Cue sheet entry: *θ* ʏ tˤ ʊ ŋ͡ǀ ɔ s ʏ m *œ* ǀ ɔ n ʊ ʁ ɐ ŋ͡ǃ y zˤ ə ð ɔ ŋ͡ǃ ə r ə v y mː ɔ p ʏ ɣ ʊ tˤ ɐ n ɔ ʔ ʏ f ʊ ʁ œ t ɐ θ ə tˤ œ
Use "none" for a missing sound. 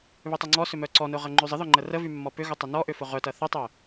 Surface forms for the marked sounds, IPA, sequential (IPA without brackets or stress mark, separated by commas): β, œ